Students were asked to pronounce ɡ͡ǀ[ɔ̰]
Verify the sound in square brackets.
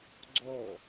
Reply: incorrect: ɔ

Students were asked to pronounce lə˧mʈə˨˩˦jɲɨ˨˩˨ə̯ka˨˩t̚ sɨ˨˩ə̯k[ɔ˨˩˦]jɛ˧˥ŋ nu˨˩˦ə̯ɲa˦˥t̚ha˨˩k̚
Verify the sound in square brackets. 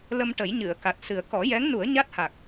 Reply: correct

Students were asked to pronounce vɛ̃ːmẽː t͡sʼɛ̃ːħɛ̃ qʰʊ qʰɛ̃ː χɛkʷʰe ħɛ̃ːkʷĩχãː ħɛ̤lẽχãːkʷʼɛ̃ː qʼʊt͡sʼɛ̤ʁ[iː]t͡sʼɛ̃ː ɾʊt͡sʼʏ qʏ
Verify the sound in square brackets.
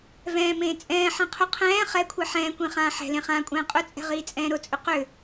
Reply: correct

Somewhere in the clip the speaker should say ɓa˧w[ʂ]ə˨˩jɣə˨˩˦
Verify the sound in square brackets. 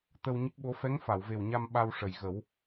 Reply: correct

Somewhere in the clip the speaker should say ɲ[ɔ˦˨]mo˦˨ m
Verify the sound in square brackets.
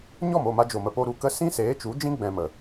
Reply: correct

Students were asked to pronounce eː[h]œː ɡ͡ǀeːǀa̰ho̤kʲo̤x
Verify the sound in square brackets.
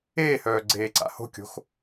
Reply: correct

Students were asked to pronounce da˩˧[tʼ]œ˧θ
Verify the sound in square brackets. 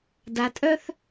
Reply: correct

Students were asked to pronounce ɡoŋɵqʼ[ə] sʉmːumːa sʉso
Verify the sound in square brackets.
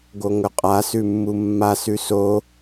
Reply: incorrect: a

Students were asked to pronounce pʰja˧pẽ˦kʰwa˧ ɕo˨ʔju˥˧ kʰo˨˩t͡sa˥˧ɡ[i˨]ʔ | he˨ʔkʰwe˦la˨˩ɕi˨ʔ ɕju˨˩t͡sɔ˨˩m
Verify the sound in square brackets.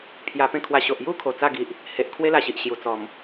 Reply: correct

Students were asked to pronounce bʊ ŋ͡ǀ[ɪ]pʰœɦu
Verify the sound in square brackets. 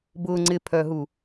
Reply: correct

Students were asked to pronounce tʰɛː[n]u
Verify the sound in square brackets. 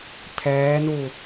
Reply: correct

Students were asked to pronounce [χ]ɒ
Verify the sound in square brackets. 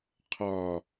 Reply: incorrect: qʰ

